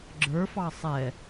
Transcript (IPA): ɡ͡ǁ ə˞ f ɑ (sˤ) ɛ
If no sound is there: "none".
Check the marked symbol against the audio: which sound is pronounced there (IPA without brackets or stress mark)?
sˤ